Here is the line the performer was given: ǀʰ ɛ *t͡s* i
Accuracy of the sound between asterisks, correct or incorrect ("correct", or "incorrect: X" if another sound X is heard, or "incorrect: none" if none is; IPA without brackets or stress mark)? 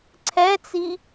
correct